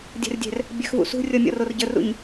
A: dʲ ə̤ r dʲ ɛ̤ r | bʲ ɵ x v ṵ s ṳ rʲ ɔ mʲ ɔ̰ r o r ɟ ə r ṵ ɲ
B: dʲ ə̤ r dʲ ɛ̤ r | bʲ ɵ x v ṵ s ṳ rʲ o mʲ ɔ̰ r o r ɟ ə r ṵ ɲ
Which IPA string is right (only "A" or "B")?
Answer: A